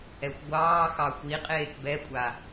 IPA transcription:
ɛ xʷ ɡʷ ɑː x ɑ xʷ i qʼ eː k b ɛ kʷʼ a

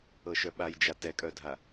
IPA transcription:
ɤ ʃ œ ɓ a j d͡ʒ a t ɛ kʼ œ dʱ a

